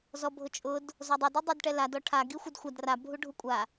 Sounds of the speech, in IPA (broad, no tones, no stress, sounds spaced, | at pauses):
z ɔ bʱ ʊ t͡ʃʼ ʊ d | z ɔ dˤ ɪ d u dˤ e d ʈ ɛ l a d ɔ ʈʰ a ɡ i xʷ ɪ d xʷ a d r a bʱ u ɖʱ u kʷʼ a